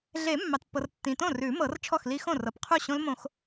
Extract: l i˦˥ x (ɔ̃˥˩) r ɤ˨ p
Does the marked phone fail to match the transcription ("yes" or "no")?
yes